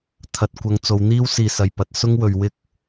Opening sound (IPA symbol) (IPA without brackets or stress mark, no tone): t̪ʰ